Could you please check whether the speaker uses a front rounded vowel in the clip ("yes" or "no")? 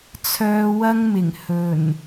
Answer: yes